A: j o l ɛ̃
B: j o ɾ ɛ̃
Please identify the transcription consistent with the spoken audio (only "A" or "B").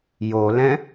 A